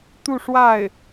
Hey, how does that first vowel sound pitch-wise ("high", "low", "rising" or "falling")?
falling